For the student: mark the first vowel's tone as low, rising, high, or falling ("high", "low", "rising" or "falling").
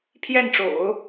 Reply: falling